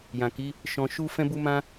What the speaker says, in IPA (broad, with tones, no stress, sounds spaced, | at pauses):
j ã˨ k i˨˦ | ʃ ɔ̃˧ ʃ u˦ f ɛ̃˦ b u˦ m ã˦